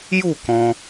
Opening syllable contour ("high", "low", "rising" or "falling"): falling